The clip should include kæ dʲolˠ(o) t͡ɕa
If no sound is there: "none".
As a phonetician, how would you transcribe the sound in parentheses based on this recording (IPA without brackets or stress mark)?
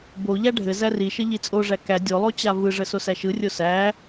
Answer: o